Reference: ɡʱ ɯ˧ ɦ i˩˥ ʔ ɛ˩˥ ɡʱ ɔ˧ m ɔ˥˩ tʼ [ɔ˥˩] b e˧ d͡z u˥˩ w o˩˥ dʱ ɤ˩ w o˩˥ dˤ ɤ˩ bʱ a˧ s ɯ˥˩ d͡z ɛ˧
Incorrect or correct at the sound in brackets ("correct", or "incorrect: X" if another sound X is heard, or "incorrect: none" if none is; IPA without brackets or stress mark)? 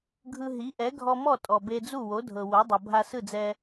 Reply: incorrect: ɔ˩